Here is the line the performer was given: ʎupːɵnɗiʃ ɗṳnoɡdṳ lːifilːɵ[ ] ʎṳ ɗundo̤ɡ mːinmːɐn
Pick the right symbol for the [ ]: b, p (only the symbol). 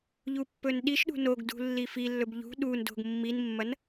b